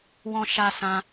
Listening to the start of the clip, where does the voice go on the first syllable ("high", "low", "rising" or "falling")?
low